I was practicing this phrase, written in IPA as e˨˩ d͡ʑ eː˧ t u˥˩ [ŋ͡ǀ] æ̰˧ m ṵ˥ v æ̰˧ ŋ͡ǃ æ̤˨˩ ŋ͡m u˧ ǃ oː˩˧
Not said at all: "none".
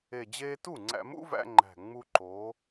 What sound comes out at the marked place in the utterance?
ŋ͡ǀ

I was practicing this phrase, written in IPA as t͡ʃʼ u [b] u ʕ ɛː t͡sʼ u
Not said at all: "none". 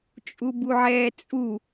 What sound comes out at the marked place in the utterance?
b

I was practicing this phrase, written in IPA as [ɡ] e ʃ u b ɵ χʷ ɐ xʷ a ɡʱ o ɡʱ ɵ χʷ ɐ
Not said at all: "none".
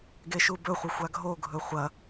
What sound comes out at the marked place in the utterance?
ɡ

